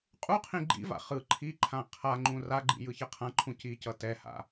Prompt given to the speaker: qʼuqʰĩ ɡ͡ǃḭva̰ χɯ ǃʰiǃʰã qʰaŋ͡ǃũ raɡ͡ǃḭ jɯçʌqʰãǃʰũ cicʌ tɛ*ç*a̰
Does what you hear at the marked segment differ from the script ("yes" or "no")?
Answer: yes